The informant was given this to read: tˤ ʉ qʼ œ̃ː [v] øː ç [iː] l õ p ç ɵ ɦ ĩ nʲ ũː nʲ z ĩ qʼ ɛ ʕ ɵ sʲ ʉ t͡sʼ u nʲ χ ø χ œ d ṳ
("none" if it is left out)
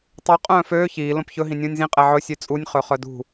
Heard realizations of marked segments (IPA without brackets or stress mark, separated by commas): f, iː